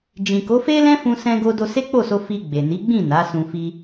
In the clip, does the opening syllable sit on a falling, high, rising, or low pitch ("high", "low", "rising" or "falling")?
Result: low